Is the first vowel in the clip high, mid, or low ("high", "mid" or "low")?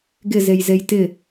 high